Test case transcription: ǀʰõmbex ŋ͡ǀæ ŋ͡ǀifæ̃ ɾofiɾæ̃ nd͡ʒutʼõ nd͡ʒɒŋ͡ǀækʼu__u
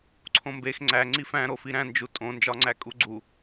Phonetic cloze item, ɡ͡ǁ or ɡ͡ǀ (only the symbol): ɡ͡ǀ